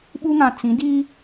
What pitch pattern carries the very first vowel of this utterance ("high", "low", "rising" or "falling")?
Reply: high